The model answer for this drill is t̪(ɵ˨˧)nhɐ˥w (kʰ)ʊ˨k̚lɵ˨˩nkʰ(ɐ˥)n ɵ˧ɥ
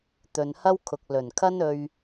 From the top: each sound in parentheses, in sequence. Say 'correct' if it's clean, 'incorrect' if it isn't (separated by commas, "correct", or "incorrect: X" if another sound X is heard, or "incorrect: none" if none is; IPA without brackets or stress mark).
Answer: incorrect: ɵ˨, correct, correct